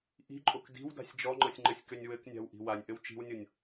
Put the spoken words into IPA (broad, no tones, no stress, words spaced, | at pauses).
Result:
ʔi̤ǃʼok di̤wda̤sʲ d͡ʒɔŋ͡ǃɤsʲŋ͡ǃɘsʲkønʲ wɘknʲa̤wʔi̤ wanʲʔɘw t͡ʃi̤wnʲonʲ